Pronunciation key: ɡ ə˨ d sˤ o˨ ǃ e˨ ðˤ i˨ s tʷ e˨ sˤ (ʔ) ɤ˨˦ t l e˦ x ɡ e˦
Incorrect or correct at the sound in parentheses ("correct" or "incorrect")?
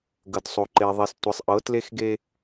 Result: correct